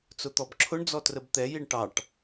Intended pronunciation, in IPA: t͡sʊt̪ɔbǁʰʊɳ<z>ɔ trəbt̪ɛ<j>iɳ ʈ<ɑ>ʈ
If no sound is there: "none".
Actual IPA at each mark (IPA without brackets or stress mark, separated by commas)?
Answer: d͡z, j, ɑ